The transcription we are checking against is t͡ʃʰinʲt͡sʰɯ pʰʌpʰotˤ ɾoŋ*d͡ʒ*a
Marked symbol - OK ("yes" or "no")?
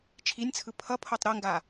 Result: no